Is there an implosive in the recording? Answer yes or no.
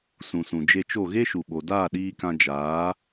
yes